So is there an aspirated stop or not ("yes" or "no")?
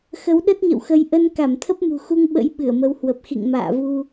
yes